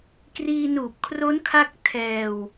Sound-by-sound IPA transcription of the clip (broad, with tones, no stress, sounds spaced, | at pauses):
k r iː˧ n uː˨˩ p̚ kʰ r o˦˥ n kʰ a˦˥ k̚ tʰ ɛː˧ w